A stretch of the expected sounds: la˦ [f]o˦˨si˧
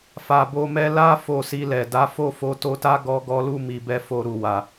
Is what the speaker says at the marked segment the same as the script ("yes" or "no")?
yes